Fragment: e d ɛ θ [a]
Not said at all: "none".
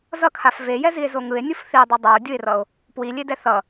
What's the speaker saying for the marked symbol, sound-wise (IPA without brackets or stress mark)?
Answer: ʌ